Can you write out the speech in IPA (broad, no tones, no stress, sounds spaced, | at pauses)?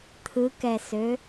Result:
t̪ʰ ɯ k ɛ s ø